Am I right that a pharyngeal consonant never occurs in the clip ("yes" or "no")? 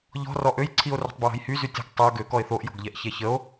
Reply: yes